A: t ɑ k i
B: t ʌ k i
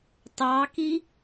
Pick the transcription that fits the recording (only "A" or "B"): A